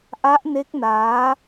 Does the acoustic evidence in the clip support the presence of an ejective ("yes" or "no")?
no